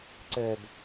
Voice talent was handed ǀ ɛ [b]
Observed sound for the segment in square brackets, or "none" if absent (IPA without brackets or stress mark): b